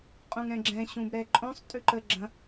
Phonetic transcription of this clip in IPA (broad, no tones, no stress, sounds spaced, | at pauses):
qʼ ũ ŋ ɛ̃ ɡ͡ǁ ɛ̃ ɕ ũ b ɾ ɛ ǃʼ õ sˤ tʼ ʉ ǃ ə ɡ͡ǁ ɐ̃